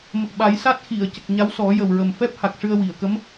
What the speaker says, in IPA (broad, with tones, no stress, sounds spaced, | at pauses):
m ə˨˩ k̚ ɓ a˨˩˦ j s a˦˥ t̚ x i˨˩˨ ə̯ c ə˨˩ k̚ ɲ a˧˥ w s ɔ˨˩˦ j ə˨˩ w ɹ ə˨˩ m f ɛ˦˥ p̚ h a˨˩ k̚ ʂ ɨ˧ ə̯ w i˨˩˨ ə̯ k ə˧˥ m